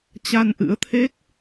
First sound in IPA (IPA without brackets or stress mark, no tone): t͡ɕ